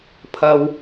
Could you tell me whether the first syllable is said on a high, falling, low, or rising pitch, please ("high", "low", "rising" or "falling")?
low